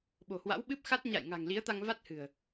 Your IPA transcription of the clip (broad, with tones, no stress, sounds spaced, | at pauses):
ɓ o̤˨˩ h w a̰˧˥ w ɓ ɨ˦˥ p̚ x a˦˥ t̚ ɲ a̰˧˨ j ŋ a̤˨˩ ŋ l i˨˦ ə̯ t̪ a˧ ŋ v a˦˥ t̚ h ɨ̤˨˩ ə̯